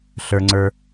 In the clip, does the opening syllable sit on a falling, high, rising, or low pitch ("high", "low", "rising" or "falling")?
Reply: low